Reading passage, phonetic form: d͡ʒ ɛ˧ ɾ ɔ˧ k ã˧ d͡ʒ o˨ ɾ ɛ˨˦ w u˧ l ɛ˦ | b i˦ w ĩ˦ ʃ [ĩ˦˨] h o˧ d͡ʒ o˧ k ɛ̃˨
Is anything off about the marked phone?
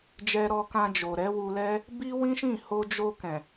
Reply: no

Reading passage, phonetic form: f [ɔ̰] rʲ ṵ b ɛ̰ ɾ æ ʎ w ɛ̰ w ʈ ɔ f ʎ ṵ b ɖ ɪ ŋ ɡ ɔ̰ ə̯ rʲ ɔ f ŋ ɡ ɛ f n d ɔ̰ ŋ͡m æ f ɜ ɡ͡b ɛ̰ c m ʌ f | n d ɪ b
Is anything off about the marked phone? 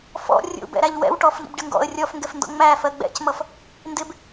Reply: no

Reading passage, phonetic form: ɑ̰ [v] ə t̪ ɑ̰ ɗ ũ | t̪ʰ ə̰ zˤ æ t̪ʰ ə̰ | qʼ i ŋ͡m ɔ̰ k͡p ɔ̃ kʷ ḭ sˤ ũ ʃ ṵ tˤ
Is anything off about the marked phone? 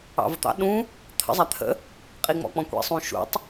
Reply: no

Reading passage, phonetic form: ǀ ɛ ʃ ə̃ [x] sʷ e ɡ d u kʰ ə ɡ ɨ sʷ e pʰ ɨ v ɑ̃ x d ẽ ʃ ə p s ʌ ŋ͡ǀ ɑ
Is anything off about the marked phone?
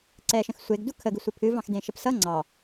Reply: no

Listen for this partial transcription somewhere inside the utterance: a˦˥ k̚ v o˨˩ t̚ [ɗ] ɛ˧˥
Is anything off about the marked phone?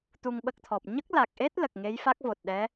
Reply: no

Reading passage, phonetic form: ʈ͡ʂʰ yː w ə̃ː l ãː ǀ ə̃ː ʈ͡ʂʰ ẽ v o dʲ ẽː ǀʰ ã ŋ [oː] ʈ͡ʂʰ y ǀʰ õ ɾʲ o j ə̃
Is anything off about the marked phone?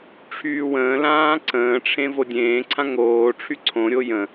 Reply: no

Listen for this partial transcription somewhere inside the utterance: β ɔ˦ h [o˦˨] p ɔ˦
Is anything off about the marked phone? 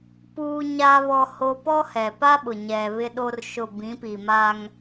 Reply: yes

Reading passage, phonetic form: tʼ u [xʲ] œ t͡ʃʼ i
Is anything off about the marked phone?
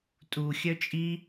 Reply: no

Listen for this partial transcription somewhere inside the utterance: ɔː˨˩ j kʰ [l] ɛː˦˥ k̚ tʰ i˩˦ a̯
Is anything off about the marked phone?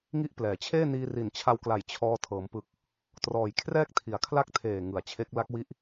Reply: yes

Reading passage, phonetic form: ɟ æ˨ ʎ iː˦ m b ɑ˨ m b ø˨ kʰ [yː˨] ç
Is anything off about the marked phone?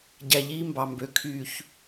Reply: no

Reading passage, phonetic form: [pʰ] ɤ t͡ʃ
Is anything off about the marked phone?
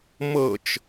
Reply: yes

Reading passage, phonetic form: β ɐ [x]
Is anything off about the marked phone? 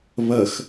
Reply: no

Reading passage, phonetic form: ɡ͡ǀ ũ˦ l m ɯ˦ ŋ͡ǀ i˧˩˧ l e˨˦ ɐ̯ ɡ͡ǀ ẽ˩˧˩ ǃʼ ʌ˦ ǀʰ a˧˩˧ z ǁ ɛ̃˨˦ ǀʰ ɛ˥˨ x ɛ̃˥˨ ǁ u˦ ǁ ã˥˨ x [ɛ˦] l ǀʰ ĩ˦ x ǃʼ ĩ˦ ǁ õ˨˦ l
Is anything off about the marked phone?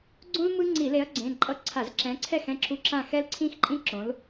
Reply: no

